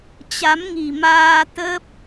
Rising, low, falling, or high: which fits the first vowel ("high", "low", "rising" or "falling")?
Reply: rising